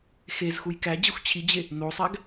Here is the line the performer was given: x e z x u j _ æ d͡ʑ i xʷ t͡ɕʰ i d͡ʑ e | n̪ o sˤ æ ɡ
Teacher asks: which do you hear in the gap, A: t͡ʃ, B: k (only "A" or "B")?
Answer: B